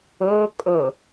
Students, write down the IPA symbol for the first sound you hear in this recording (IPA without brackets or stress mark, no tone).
o